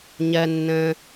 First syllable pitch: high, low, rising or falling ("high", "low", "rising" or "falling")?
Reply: low